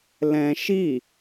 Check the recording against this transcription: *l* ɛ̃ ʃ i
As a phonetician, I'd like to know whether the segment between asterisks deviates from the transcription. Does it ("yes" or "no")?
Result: no